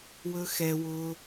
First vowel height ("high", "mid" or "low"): mid